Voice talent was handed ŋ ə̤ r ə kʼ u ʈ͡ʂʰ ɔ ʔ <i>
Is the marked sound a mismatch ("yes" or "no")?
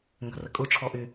yes